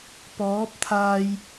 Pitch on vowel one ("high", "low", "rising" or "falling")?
rising